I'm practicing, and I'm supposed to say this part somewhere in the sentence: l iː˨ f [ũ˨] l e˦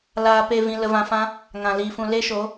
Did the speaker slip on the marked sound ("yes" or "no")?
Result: no